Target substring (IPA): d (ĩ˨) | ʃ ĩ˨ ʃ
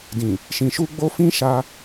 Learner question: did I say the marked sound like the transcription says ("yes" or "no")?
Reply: yes